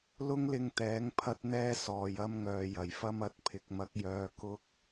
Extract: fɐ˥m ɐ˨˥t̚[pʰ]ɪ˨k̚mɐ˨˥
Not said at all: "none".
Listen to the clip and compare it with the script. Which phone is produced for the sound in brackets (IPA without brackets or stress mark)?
pʰ